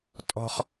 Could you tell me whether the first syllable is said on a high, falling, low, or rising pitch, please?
high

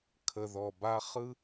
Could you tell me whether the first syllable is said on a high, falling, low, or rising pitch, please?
low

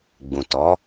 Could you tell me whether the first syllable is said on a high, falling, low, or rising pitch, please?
low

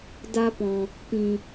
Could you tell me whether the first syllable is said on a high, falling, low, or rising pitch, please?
high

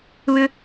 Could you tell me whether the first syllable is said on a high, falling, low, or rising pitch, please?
high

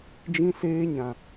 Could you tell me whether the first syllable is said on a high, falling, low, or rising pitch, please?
high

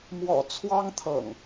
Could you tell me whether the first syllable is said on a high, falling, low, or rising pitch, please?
low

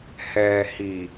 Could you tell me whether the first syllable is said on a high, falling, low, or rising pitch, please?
low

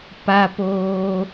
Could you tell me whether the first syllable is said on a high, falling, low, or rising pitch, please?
high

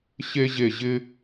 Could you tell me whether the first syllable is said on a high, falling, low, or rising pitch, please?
high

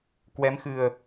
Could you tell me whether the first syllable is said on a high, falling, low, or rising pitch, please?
rising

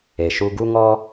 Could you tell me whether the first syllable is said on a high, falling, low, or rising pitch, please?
low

